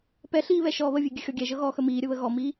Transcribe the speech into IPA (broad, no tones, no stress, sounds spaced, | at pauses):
p ɛ ɬ iː β ɛ ʃ ɔː β ə vʲ e ɡʲ ə xʲ ɔ ɡʲ ɛ ʒ ɤ ɣ ɔː x ə m iː ɾʲ ə β ə ɣ ɔ m iː